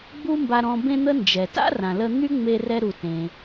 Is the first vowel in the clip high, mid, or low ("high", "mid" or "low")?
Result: high